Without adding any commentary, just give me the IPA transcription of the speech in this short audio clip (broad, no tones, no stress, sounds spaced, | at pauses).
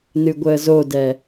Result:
n ɨ ɡʷ əː z o d ɛ